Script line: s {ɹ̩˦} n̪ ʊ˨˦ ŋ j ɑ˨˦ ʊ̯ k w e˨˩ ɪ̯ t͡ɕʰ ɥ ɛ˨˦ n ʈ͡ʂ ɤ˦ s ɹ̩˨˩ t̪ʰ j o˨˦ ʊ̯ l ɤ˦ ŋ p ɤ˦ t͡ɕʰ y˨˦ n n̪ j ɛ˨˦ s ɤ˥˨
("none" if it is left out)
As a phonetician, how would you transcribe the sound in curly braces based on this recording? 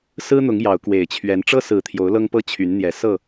ɹ̩˦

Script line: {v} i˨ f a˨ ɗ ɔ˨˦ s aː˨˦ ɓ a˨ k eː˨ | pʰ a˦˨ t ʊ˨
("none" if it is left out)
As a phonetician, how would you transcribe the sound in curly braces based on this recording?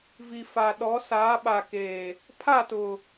v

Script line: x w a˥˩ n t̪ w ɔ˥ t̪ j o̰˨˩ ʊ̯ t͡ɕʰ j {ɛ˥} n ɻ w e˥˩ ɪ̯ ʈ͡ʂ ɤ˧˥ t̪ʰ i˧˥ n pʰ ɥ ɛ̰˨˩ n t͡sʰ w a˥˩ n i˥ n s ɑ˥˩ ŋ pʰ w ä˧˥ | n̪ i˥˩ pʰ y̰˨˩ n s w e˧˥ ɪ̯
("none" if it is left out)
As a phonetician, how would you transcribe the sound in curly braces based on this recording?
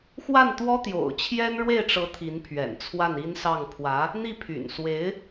ɛ˥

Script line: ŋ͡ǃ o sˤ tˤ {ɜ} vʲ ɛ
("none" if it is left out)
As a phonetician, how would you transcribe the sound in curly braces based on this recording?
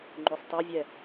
ɜ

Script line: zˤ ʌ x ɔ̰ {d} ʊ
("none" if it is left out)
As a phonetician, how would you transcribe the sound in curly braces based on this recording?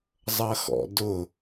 d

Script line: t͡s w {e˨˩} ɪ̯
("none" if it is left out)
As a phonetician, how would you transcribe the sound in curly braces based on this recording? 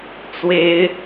e˨˦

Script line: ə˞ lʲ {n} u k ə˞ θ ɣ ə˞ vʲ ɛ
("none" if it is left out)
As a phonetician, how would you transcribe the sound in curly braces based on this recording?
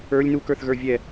n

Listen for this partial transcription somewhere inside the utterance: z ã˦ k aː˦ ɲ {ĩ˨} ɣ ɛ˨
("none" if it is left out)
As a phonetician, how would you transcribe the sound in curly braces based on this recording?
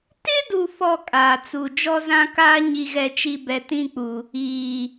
i˨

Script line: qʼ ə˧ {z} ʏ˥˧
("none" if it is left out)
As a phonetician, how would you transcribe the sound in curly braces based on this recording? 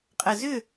z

